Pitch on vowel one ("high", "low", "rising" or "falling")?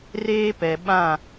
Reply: high